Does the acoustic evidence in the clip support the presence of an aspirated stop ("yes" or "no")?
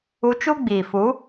no